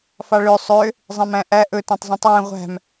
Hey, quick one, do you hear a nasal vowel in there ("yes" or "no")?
yes